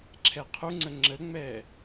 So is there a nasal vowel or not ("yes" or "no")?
no